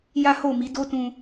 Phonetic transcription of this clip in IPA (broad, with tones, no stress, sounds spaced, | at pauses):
j a˦ h o˦˨ m i˨˦ d o˦ t ũ˧